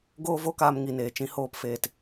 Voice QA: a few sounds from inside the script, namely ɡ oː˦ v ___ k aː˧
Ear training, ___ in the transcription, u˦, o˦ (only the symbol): o˦